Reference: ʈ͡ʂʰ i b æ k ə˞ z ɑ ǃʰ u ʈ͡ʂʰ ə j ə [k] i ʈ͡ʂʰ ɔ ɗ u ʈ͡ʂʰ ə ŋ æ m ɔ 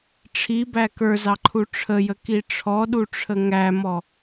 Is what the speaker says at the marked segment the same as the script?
yes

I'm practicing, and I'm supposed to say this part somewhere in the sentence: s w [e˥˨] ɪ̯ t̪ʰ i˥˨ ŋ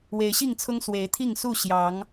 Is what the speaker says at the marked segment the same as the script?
no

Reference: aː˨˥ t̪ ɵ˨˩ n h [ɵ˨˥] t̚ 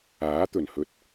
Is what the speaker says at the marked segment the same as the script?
no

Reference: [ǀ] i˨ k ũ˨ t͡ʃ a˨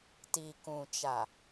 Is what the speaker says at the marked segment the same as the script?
no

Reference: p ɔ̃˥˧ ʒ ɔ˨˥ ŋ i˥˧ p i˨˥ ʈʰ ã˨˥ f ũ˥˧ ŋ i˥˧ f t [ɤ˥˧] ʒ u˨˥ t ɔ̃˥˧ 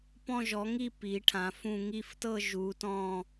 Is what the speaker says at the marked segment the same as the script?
yes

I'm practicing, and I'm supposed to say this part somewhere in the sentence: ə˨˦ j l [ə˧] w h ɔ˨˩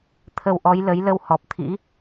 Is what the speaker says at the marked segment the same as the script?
yes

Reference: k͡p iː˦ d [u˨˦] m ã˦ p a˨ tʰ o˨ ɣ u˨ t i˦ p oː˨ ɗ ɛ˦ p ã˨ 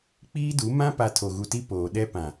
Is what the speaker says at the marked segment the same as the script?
yes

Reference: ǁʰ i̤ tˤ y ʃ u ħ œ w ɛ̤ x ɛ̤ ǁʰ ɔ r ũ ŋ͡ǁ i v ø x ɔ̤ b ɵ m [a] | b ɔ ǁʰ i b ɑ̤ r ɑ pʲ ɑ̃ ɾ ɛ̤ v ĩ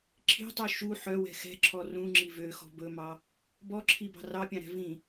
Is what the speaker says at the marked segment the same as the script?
no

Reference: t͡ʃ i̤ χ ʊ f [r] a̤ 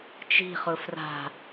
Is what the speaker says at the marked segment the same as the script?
yes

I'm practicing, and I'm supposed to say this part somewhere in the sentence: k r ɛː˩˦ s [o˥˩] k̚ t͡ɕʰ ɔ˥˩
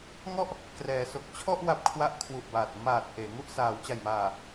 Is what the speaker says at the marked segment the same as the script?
no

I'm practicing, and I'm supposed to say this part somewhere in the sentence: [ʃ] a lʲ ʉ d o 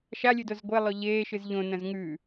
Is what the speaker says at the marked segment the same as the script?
yes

